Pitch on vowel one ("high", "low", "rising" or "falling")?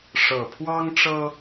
low